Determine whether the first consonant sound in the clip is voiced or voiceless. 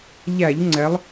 voiced